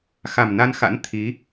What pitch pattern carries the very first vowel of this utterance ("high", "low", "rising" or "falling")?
low